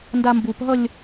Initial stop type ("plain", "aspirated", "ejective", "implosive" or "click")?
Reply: plain